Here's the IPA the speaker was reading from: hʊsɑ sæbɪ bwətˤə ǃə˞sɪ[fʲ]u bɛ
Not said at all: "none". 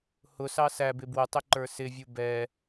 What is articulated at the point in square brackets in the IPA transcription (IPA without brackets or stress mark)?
vʲ